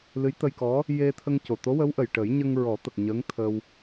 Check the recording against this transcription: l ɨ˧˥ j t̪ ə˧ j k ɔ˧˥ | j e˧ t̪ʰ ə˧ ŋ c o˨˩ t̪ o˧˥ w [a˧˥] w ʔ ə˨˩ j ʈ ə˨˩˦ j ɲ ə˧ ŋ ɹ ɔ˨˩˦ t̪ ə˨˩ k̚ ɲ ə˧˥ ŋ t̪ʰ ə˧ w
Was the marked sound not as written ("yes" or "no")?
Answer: yes